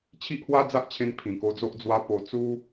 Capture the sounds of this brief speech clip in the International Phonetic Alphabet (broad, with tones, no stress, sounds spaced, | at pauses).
t͡ɕʰ i˦ ʔ h w a˦ d͡z a˦ ʔ t͡ɕʰ ẽ˧ n pʰ ĩ˨˩ k o˧ d͡z o˦ ʔ d͡z w a˦ p o˧ t͡s u˦